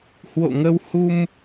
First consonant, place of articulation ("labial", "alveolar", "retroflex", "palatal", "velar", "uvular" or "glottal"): glottal